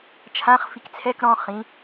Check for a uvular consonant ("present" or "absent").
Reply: present